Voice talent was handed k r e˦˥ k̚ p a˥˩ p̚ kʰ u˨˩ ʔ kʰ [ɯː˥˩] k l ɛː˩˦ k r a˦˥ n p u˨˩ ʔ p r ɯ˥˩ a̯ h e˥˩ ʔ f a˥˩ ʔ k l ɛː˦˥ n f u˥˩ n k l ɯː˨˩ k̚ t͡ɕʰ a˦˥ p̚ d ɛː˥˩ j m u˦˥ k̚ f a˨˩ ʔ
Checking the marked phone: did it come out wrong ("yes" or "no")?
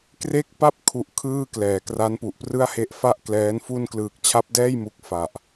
no